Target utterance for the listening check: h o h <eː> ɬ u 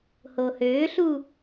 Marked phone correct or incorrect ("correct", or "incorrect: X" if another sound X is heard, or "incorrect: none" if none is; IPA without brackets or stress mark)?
incorrect: øː